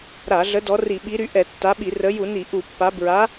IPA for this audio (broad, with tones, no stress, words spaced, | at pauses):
ɾa˧˩˧ɮə˨˦ dɔ˨˦ri˧˩˧ ɓi˨˦ɾy˨˦ ʔɛ˧˩˧tːa˨˦ɓi˧˩˧ rə˨˦ju˧˩˧ni˧˩˧ ʔu˧˩˧pːa˨˦ bɹa˨˦